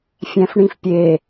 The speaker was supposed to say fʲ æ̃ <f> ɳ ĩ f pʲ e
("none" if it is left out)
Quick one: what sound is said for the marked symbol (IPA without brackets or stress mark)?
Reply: f